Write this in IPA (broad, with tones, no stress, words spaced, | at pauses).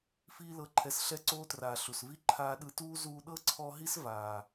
fiː˦lɤ˧ ǃʰɛ˧sɬɛ˦ǀoː˦traː˨ ɬu˨svi˦ ǃʰaː˧ɗɯ˧tuː˦ zuː˧ɗɤ˦ǀʰɔ˧ɦi˦s vaː˨